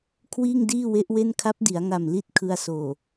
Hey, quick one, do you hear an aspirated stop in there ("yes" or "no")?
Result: yes